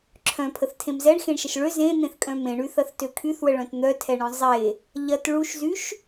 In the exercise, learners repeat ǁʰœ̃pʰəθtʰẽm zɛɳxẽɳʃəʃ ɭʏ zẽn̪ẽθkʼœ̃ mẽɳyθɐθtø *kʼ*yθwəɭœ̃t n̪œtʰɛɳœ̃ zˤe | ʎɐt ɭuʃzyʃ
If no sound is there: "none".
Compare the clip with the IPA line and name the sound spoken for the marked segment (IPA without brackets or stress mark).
kʰ